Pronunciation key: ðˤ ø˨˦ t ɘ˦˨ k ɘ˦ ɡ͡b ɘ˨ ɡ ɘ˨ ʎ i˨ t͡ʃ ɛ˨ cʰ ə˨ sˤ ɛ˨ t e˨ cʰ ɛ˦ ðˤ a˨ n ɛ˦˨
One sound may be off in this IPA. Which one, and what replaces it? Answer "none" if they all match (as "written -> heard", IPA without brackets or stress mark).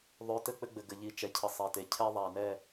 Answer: k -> k͡p